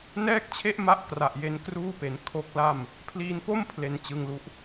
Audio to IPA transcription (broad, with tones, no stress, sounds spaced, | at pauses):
n ɛː˥˩ k̚ t͡ɕʰ e˥˩ ʔ m a˦˥ ʔ k r a˨˩ ʔ j e˦˥ n k r uː˥˩ p e˩˦ n kʰ o˦˥ k̚ l a˥˩ m | pʰ l iː˧ n p o˥˩ m pʰ l e˧ n t͡ɕ ɯ˧ ŋ l u˦˥ ʔ